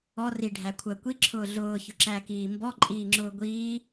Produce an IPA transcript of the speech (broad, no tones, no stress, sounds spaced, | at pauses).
ɔ r i ɖʱ æ kʷʰ əː kʷ i ǁʰ ʊː ɮ ʊː ç ʊ ǁ æ k iː m b ɔ ǃʼ iː ŋ͡ǁ ʊː ɡʷ iː